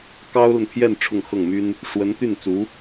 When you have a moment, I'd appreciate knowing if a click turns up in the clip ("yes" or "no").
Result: no